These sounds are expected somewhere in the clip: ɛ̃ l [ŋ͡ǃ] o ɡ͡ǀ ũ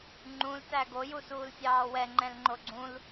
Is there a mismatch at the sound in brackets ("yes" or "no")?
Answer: no